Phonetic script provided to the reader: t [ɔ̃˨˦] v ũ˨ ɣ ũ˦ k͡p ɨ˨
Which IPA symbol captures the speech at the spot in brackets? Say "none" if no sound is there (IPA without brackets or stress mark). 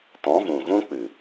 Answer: ɔ̃˨˦